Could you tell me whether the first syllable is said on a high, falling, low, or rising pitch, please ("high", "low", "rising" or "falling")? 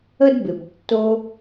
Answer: high